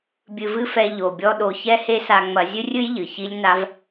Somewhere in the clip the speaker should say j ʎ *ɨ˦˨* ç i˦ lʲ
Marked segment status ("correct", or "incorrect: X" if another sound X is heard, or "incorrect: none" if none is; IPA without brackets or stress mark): incorrect: ɨ˨